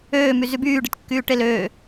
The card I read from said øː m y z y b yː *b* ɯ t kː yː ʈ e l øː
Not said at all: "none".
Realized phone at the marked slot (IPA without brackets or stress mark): ɖ